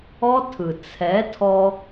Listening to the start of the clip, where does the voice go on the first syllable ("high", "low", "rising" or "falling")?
high